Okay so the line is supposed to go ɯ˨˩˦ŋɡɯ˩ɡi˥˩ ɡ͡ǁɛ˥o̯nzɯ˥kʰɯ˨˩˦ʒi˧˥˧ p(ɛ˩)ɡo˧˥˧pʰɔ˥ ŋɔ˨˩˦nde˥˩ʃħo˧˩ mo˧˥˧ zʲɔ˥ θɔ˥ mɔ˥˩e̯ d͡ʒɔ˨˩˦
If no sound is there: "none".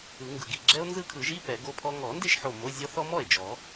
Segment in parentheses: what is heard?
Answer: ɛ˨˩˦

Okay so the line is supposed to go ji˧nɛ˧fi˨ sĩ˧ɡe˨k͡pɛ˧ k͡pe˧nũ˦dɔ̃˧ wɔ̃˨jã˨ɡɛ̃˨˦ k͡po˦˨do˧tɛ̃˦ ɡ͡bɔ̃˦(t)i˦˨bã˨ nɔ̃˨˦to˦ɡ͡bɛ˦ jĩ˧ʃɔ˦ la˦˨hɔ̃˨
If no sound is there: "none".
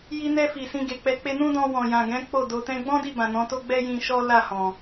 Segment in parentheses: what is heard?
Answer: d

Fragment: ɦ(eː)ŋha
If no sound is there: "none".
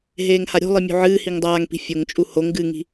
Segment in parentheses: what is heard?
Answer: eː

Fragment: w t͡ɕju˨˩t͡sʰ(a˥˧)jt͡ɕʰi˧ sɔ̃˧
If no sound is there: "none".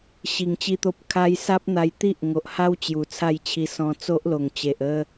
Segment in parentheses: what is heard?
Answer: a˥˧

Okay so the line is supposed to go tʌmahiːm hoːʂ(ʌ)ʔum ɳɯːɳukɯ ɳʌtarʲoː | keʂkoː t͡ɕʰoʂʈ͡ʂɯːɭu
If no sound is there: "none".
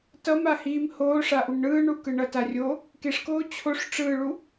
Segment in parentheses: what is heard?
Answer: a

